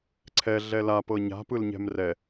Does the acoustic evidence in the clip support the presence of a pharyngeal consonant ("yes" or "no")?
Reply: no